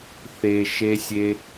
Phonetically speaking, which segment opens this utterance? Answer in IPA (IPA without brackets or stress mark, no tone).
θ